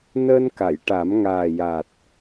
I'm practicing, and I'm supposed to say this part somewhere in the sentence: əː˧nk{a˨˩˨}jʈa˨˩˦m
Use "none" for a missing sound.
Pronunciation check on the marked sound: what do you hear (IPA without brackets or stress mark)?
a˨˩˨